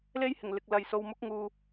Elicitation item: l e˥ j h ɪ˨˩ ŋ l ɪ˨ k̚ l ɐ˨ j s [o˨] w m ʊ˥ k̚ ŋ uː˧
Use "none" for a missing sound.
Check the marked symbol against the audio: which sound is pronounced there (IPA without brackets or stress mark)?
o˧